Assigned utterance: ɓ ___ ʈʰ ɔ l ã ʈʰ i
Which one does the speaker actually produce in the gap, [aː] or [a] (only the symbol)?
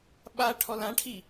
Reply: a